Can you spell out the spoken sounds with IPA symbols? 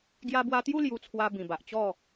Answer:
ɡ j a˧ b w a˧ t̪ j u˥˧ l j u˧ t͡sʰ w a˧ b ĩ˨˩ b a˨ ʔ t͡ɕ ɔ˥˧

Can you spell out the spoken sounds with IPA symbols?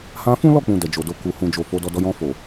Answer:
h ã˧ f ũ˦ l ɔ˦˨ k͡p ũ˨ d ɛ˨ d͡ʒ o˨ d o˨ k u˨ h ũ˨ d͡ʒ o˨ f o˨˦ d ɔ˧ d ɔ˧ j ɔ̃˧ f o˨

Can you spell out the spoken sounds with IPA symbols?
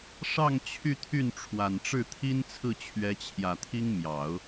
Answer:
ʂ ɑ˥˧ ŋ t͡ɕʰ y˥˧ t̪ʰ y˥˩ n ʈ͡ʂʰ w a˨˩ n ʈ͡ʂ ɻ̩˥˩ t̪ʰ i˥ n t͡sʰ ɹ̩˥˩ t͡ɕʰ ɥ ɛ˧˥ t͡ɕʰ j ä˨˩ t̪ʰ i˥ ŋ m j ɑ˨˩˦ ʊ̯

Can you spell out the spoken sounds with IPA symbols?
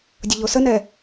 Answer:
dʲ ʊ ʎ o s ə n ɛ

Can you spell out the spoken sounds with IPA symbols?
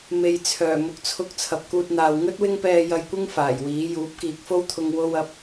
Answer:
m e˨ j t͡sʰ œː˨˩ m ʊ˨ k̚ t͡sʰ ʊ˧ k̚ t͡sʰ ɐ˨ p̚ k uː˧ t̚ n̪ aː˨ w ŋ ɵ˥ t̚ w ɪ˥ ŋ p ɛː˧ j ɐ˧ j kʷ ɪ˥ ŋ f aː˨˩ j w iː˨˥ j uː˨˥ p̚ k iː˨ k̚ f o˥ w t̪ʰ ʊ˧ ŋ w o˧ w ɐ˨˥ p̚

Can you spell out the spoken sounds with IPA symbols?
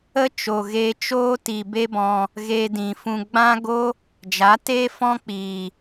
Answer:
ə˦ t͡ʃ o˨ ɣ e˧ t͡ʃ oː˦ t i˨ b e˦ b ɔ̃˧ | ɣ eː˧ d ĩ˨ f ũ˧ ɡ͡b ã˦ ɡ o˦ | d͡ʒ a˨˦ t eː˦ f ɔ̃˦ k͡p iː˨

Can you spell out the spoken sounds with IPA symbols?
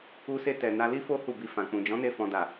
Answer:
u˧ s e˧ t ɛ˨ n a˧ l i˦ f o˦ h u˦˨ b i˧ f ã˨ k͡p ũ˨ d͡ʒ ɔ̃˨˦ n e˧ f ɔ̃˨ d a˨

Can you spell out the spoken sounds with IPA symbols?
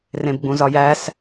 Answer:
r ẽ b ɡ͡b ũ z ɒ j æ s

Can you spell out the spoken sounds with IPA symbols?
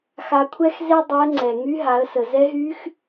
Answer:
x a˧ kʷʰ ɛ˥ x z e˥ dˤ e˧˥ ə̯ ŋ͡ǀ ɛ˩ ŋ y˧˥ ɦ a˩˧ ə̯ s ə˩ z ɛ˧˥ ɦ y˧˥ x

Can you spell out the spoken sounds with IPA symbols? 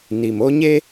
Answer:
n i˨ m o˦ ɲ e˦

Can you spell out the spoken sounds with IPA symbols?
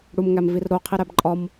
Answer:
ɽ u m ŋ æ m v i r ɾ o qʰ i ɾ æ b ǃʼ ɒ m

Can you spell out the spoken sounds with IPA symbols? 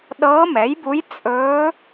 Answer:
ɗ ɤː˧˥ m ɛ˩˥ j b u˧˥ j t͡sʼ ɵː˧˥

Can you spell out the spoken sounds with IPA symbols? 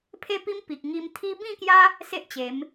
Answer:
pʰ e˦ p i˦ m p i˨ k̚ ŋ i˧ m t̪ʰ i˦ b ĩ˥˧ k j a˦ | s e˦ ʔ t͡ɕ e˨˦ m

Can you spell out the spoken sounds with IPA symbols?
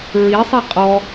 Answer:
ɹ i sˤ i qʼ ɔ

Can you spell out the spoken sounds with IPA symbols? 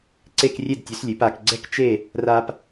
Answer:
ǀ e˥˧ k rʲ e˥˧ d tʲ ʉ˩˥ s lʲ ʉ˩˥ p a˩˥ k ɡ͡ǀ ɛ˥ k t͡ʃ e˥˧ | r a˥ p

